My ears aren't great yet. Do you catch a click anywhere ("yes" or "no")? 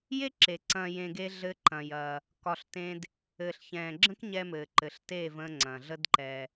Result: yes